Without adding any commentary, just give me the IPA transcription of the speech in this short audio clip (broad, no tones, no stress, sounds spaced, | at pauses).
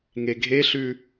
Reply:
ŋ e ɡʱ e ɬ ʉ